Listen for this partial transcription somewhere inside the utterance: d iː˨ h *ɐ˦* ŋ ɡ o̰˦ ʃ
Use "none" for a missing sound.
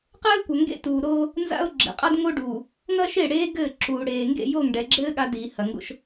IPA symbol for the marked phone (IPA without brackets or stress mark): ɐ˨